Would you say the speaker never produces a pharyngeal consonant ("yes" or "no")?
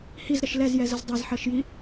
no